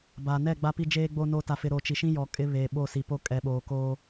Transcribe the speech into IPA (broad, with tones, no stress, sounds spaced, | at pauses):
b a˨ n ɛ˦˨ ɡ͡b a˦ p i˦ d͡ʒ eː˦ ɡ͡b o˦ n oː˦ t a˦ f ɪ˦ ɾ o˨ t͡ʃ i˨ ʃ ĩ˦ j ɔ˨ kʼ ɪ˦ β eː˨ ɓ o˦˨ s i˨ p o˦ kʼ ɛ˨˦ ɓ oː˨ k oː˦